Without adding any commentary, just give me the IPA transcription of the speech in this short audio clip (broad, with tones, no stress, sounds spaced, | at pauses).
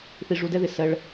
θ i˧ ʐ u˧ d ɛ˦ ð ɪ˨ s ɜ˧ ɭ